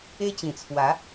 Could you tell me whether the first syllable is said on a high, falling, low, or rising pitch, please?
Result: high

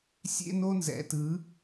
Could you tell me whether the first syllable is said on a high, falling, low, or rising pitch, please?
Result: high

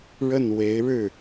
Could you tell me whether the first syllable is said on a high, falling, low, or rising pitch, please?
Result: falling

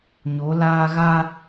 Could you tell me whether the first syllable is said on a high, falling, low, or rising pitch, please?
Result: rising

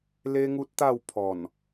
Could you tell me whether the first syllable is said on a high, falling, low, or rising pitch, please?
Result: high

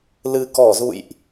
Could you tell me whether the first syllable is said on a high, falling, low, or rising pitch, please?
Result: low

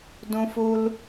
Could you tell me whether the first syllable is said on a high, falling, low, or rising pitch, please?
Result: high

